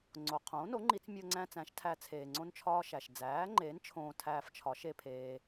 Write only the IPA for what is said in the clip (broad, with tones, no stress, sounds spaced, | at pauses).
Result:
ŋ͡ǀ o˩ qʰ õː˩˥ n o˩˥ ŋ͡ǃ i˨˩˦ t͡s mʲ o˧ ŋ͡ǀ æ̃˧ t͡s æ̃˩˥ ʃ tʰ æ˧ t͡sʰ eː˩ ŋ͡ǀ õ˧ n t͡ʃʰ ɒː˧ ʃ æ˩ ʃ d͡z æː˩˥ ŋ͡ǃ eː˩˥ n t͡ʃʰ õː˧ tʰ æː˧ f t͡ʃʰ ɒ˩˥ ʃ e˧ pʰ eː˧